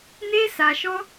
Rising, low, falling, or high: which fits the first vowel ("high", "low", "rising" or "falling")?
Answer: high